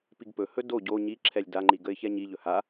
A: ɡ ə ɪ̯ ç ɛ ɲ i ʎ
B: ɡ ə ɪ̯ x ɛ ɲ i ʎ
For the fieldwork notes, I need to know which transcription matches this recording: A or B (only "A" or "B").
A